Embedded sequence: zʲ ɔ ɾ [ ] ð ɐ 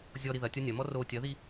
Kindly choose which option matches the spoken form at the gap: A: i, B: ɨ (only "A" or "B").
A